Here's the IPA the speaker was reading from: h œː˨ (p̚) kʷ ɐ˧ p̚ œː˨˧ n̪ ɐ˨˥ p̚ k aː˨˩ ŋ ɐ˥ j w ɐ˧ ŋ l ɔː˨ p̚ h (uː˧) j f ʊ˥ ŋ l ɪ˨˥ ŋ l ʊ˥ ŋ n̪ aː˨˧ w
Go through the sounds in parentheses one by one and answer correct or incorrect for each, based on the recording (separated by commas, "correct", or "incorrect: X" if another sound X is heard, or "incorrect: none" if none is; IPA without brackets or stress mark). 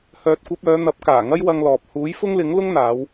incorrect: t̚, incorrect: uː˨˥